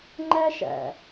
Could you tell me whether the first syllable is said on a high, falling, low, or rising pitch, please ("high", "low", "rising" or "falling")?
high